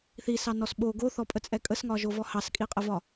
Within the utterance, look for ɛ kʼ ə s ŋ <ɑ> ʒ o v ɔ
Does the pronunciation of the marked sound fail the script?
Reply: yes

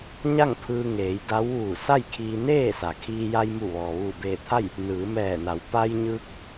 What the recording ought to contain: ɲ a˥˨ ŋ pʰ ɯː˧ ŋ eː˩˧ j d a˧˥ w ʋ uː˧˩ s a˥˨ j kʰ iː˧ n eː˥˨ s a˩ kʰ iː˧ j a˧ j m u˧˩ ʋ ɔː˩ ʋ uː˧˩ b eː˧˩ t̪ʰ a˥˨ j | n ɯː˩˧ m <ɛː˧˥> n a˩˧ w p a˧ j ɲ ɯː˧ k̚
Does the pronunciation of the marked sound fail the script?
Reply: yes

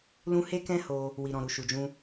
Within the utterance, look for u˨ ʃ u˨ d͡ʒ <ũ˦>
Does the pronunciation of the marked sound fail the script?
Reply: yes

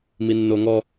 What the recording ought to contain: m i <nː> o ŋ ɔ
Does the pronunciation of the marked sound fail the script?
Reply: no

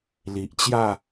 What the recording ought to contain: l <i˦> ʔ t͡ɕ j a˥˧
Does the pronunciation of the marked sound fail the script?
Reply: yes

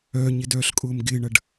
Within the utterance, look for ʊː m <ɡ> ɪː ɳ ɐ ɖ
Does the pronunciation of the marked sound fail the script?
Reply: no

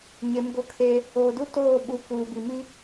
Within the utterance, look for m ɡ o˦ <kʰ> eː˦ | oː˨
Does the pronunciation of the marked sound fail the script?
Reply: no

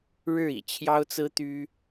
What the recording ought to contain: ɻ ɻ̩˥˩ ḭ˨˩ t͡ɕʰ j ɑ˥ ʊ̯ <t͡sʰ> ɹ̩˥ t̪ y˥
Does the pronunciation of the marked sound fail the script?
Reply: yes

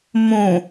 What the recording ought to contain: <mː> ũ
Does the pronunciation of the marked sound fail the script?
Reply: yes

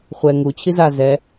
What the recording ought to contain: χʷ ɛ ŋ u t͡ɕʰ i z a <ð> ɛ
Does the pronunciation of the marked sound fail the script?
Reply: yes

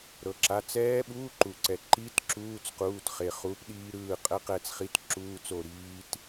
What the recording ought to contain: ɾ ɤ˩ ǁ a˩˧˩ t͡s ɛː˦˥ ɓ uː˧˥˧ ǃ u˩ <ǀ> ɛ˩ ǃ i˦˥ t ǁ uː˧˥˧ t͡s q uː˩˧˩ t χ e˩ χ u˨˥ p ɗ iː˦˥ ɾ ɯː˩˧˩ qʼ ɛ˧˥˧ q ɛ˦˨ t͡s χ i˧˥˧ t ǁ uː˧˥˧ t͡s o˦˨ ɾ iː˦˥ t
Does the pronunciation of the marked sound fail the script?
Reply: no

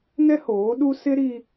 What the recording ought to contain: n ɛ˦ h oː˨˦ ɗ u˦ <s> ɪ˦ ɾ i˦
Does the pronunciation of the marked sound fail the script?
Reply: no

